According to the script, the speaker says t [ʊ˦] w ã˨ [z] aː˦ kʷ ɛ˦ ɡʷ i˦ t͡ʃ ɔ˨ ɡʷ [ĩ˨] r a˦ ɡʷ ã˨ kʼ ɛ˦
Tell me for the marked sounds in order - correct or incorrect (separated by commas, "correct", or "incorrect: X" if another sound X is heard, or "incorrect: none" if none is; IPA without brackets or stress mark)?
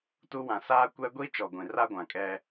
incorrect: u˦, incorrect: s, correct